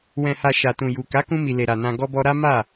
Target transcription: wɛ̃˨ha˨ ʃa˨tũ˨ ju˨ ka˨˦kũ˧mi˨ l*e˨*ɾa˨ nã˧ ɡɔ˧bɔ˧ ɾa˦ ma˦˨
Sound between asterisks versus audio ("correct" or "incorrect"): correct